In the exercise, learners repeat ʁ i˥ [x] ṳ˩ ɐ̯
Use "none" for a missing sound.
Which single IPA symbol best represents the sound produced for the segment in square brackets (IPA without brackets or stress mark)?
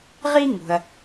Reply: ŋ